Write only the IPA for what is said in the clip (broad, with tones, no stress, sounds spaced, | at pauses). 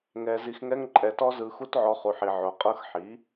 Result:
ŋ ɛ˧ z i˧ x ŋ ɛ˦ ŋ ǃʼ ɛ˧ t ɔ˦ z ɯ˧ x u˦ t ʕ ɔ˧ χ u˨ ħ i˨ ʕ o˨ qʼ ɤ˧ x ħ i˨˦